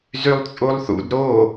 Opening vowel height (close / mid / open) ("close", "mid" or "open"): close